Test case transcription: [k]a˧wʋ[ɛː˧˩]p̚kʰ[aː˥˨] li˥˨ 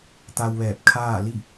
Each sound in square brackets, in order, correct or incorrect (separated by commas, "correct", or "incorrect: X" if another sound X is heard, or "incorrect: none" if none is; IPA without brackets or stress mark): incorrect: t̪, correct, correct